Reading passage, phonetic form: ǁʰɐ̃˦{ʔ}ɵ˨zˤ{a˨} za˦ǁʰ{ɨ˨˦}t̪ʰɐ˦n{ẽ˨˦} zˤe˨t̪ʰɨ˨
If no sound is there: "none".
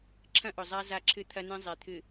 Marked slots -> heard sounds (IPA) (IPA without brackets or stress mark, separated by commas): ʔ, a˦, ɨ˦, ẽ˦